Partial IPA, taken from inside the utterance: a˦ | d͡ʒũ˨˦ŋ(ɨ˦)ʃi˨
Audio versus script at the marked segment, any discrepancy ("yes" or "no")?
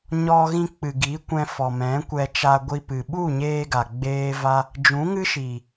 no